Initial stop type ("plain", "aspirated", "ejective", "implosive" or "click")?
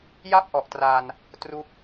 plain